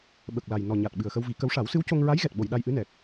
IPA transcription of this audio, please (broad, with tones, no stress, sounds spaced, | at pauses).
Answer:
ɓ ə˨˩ k̚ l a˨˩ j n ɔ˨˩ ɲ a˨˩ t̚ ɓ ɨ˨˩ ə̯ x ə˧ w v i˨˩˦ k ə˧˥ w ʂ a˨˩˦ w s ɨ˧˥ w c o˧ ŋ ɹ a˧˥ j ɣ ɛ˨˩ t̚ ɓ o˨˩˨ j ɗ a˧ j ʔ ɨ˧˥ n ɛ˨˩ k̚